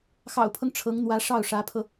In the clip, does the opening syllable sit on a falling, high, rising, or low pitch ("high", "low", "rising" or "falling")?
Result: low